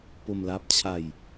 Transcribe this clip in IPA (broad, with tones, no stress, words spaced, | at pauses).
po˧mla˦˥p̚ t͡ɕʰa˧j